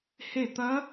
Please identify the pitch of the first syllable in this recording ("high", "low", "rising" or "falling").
falling